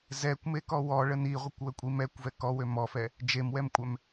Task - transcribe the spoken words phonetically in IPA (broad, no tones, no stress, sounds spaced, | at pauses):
z ɛ kʷ m e k ɔ w ɔ ɭ ə n i ʁʷ ə kʷ w ə kʷʼ i m ɛ kʷ v ɛ k ɔ w ø m ɔ f ɛ | d͡ʒ e m w ɛ m kʷʼ ɛ m